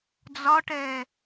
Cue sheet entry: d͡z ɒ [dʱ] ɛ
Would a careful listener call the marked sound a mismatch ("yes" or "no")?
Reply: yes